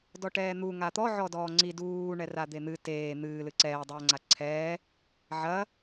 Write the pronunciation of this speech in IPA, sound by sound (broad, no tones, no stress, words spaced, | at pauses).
dɔʈɛːn̪u ŋat̪ɔ ʕɔdɔːŋ͡ǀi duː ɳɛrad̪en̪ɨ teː n̪ɨː lɨǀɛː dˤɐːŋ͡ǀaǀʰɛː | ʕɐ